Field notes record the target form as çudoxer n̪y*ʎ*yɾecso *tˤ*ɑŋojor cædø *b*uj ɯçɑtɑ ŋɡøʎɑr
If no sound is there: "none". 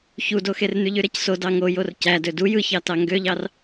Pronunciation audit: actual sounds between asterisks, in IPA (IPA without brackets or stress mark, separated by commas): ʎ, d, d